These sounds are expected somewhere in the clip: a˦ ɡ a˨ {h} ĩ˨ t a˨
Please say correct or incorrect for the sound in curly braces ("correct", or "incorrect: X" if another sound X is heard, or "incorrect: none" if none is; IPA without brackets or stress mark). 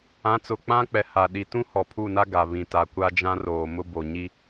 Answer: incorrect: β